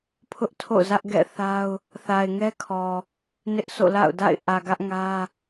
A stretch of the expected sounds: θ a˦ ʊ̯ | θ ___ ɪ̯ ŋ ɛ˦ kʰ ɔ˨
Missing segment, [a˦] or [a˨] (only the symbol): a˨